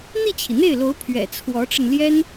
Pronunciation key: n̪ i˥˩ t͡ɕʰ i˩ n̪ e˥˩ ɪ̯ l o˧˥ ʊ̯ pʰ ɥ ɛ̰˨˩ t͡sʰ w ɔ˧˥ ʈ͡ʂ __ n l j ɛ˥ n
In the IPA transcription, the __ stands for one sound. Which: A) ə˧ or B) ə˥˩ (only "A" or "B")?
A